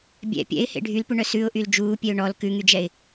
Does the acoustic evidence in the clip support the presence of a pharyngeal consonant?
no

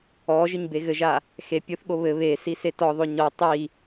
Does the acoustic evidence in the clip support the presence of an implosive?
yes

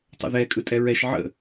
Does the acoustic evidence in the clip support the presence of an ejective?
yes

